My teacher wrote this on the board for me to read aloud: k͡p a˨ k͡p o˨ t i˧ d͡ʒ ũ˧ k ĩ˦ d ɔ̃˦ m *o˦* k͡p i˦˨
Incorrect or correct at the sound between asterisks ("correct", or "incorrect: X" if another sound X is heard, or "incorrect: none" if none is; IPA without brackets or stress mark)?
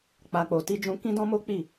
correct